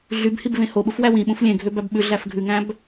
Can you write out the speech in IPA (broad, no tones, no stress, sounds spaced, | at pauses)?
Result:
ɮ y b h i b v ẽ h o ɓ u f w æ w ĩ ɓ ũ f lʲ ẽ ɡʱ ø b æ b ɓ ʉ ɮ æ f ɡʱ ʉ ŋ æ̃ b